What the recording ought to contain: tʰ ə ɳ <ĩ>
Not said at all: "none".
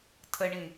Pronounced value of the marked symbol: ĩ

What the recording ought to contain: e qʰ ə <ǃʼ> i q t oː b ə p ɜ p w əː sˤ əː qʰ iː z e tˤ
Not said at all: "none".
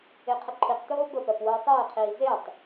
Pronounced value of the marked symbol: ǃʰ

